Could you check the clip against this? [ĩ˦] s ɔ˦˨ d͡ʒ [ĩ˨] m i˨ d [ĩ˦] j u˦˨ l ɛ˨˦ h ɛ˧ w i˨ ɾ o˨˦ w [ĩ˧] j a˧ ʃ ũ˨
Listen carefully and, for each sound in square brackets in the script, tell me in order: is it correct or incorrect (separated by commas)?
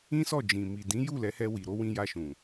correct, correct, incorrect, correct